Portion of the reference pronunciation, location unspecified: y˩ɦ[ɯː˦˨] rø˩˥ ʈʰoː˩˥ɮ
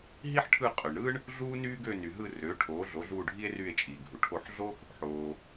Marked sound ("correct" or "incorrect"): incorrect